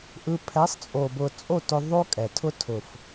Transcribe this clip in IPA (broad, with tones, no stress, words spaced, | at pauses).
ʔɯ˧ pʰɛ˨˦sˤt͡sʼo˨bʊ˨ t͡sʼo˦˨tʊ˧ ðˤo˦kʼɛ˨ tʰʊ˦tʰʊ˨f